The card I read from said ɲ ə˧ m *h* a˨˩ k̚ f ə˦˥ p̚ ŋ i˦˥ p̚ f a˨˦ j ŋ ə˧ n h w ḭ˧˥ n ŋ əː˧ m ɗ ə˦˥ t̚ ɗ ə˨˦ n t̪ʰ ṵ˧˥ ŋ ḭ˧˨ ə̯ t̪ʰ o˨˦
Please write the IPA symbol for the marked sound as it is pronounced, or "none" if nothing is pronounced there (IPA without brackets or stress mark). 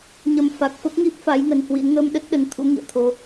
f